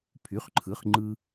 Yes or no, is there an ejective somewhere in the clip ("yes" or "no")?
no